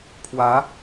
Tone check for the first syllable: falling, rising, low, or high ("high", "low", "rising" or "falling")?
rising